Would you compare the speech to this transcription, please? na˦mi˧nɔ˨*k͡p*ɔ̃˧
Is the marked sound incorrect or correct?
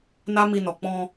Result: correct